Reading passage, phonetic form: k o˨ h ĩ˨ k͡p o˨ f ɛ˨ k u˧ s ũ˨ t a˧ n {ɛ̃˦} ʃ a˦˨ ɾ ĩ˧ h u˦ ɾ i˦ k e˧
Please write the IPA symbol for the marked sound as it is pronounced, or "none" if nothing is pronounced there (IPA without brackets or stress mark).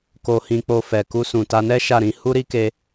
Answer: ɛ˦